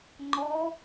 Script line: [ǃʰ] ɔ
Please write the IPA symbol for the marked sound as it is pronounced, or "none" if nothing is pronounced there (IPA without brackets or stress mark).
ŋ͡ǃ